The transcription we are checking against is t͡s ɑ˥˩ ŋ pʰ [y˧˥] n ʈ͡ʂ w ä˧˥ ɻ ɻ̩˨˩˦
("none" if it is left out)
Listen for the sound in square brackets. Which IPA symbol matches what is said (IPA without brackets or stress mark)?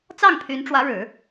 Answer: y˧˥